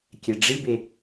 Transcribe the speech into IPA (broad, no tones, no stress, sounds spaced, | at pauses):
kʲ ɛ ɖ͡ʐ i b e